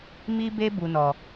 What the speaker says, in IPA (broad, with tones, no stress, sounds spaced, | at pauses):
m i˦ b e˦ b u˧ n ɔ˨